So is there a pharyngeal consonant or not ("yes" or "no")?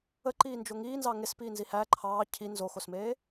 no